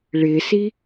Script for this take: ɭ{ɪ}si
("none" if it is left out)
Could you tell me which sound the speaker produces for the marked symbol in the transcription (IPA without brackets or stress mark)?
ɪ